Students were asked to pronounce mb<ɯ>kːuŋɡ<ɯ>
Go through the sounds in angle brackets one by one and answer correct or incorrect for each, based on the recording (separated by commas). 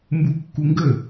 incorrect, incorrect